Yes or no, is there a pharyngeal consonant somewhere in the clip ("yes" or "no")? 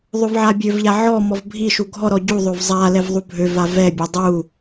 yes